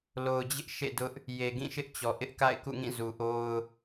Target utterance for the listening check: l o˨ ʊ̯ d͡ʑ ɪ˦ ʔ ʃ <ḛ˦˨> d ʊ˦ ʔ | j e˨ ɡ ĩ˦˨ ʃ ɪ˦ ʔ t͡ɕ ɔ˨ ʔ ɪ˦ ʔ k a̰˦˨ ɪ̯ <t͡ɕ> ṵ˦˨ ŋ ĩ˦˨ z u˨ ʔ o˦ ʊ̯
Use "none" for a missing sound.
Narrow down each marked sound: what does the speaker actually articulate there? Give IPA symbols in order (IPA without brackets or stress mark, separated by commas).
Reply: ḛ˦˨, k